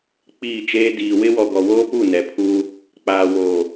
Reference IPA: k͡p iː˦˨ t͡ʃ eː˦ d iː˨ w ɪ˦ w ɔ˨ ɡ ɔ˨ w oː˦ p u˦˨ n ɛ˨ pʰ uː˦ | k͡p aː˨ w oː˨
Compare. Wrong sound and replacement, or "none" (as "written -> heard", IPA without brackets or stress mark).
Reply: none